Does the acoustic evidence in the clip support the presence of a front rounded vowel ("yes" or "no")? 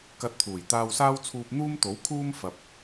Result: no